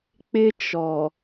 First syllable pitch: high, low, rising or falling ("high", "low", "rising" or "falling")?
high